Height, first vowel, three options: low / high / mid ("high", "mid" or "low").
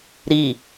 high